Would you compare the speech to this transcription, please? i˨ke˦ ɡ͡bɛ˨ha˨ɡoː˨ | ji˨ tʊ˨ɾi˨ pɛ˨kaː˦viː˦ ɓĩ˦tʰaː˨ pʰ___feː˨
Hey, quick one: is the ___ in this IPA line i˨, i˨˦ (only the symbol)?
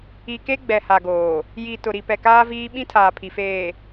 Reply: i˨